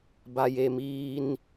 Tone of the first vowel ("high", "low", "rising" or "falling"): high